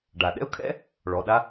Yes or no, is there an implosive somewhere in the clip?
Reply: yes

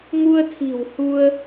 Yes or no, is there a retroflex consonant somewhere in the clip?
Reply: no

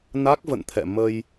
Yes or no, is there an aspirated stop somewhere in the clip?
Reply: yes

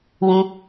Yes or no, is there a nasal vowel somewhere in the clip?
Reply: yes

